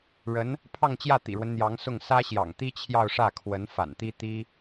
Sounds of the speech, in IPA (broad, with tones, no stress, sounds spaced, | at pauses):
ɻ ə˧˥ n | pʰ ɑ˥˧ ŋ t͡ɕ j ä˥˩ t̪ ḭ˨˩ ɻ w ə˦ n n̪ j ɑ˧˥ ŋ s ʊ˥˩ ŋ s ä˥ ɕ j ɑ̰˨˩ ŋ t̪ i˥ t͡ɕʰ j ɑ˥˧ ʊ̯ ʂ ä˥˩ kʰ w ə˧˥ n f a̰˨˩ n t̪ i˥ t̪ i˥